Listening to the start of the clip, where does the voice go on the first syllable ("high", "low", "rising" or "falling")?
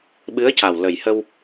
rising